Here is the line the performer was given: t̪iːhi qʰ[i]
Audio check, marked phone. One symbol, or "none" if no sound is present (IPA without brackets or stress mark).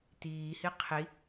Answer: i